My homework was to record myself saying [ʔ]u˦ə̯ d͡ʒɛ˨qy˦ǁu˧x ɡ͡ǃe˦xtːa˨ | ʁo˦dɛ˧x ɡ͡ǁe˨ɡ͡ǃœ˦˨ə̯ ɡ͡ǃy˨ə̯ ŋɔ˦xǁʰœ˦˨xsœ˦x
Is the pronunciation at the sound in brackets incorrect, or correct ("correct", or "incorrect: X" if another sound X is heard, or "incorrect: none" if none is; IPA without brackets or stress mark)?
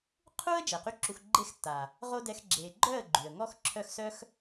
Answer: incorrect: qʰ